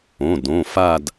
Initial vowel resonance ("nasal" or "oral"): nasal